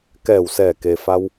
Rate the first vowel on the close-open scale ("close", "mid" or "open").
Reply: mid